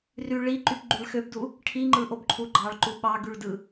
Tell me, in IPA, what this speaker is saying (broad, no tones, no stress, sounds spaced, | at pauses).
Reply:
r y ɭ i ǃ y p ɡ͡ǃ y ɭ x ø b d u | ʈʰ i ŋ͡ǃ ɯ ʔ o b ǃʰ u ɡ͡ǃ ɑ ɭ ǃ u ɓ ɑ ɡ y ɭ d ɯ